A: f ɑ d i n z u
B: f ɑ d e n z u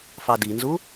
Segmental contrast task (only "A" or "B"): A